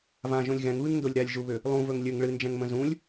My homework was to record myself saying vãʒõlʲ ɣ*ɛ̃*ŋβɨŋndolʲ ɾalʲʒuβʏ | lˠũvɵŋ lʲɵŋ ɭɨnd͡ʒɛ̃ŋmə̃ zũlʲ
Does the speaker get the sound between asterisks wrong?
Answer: no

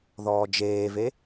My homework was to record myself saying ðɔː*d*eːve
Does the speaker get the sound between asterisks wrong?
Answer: yes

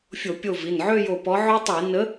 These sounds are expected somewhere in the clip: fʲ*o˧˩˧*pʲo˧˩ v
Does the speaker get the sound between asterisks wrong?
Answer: no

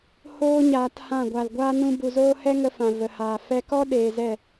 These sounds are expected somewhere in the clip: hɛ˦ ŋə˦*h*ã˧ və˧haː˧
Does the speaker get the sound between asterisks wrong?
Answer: yes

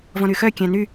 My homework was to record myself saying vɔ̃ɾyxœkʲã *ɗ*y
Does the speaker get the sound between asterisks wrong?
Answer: yes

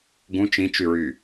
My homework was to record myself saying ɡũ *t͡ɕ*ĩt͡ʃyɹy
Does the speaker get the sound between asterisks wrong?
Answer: yes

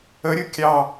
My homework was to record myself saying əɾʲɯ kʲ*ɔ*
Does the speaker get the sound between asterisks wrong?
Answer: yes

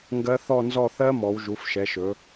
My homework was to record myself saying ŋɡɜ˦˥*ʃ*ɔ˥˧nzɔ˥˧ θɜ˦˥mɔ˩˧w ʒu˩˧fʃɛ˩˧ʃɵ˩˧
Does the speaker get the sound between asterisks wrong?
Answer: yes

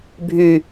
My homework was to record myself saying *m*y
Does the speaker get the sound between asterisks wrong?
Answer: yes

